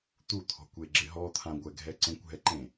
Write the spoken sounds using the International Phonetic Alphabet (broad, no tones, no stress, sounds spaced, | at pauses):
t̪ u t̪ʰ ɔ̤ kʷ e ɡ͡ǁ ɪ ɦ ɔ t̪ʰ ã ɡʷ ɛ ɡʱ ɛ ǀ ẽ kʷ ɦ ɛ ǃ ẽ